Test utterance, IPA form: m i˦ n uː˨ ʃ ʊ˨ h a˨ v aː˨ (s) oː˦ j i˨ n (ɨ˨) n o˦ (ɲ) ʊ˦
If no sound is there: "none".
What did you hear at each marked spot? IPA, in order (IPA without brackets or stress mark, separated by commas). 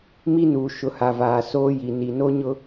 s, i˨, ɲ